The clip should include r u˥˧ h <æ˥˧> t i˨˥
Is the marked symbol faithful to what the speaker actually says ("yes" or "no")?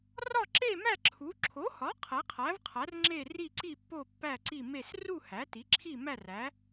no